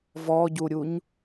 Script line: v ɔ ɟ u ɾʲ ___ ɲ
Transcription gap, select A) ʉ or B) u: B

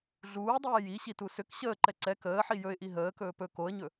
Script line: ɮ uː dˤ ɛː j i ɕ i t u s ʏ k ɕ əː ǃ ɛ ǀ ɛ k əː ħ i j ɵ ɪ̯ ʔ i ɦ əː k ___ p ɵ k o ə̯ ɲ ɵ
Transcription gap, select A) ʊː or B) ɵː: B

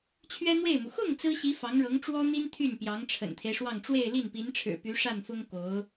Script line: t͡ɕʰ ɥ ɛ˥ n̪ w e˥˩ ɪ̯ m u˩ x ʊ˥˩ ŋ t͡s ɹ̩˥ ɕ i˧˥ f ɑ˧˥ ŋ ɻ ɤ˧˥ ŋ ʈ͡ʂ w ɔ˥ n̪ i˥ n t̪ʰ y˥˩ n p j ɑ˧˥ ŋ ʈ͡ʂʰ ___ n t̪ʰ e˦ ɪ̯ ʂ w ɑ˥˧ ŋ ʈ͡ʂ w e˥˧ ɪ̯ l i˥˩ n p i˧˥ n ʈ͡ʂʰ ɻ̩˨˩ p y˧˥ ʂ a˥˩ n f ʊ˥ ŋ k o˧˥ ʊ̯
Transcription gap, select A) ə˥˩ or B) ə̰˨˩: B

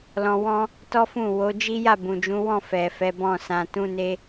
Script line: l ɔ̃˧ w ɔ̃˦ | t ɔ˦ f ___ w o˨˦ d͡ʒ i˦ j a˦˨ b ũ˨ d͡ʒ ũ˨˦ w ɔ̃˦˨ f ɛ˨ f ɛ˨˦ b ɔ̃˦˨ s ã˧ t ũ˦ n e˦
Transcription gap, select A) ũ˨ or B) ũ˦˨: B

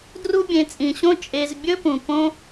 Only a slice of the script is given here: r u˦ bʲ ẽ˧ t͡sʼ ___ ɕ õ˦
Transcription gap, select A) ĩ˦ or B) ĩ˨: B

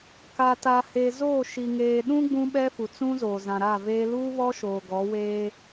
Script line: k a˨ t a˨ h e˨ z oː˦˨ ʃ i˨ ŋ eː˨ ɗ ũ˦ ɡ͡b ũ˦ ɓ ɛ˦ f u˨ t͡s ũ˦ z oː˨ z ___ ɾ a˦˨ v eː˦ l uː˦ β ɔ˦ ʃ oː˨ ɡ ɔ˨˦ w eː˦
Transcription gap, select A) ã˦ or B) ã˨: B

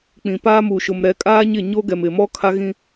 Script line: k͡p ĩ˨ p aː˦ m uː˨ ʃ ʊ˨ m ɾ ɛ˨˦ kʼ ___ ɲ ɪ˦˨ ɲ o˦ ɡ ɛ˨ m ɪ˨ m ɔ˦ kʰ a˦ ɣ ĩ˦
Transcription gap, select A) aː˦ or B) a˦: A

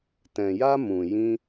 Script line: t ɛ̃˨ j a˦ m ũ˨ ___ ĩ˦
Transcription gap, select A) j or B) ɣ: A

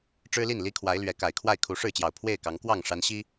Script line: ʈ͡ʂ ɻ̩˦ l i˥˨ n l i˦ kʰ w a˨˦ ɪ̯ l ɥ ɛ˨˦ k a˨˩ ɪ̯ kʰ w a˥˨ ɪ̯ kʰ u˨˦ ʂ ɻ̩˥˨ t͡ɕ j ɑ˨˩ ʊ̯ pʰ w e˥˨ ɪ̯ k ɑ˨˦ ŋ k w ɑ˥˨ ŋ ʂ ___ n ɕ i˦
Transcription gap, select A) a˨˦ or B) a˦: A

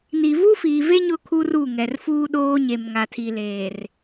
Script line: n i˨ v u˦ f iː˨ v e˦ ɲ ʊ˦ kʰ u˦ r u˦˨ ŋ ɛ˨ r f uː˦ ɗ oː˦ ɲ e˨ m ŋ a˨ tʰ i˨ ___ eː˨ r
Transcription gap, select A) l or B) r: A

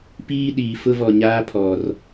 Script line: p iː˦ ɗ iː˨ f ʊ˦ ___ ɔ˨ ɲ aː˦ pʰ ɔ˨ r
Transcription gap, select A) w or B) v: B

